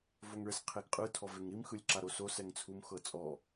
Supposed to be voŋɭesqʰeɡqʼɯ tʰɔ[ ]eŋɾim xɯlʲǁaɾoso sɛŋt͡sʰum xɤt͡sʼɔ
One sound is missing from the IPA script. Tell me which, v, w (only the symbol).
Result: v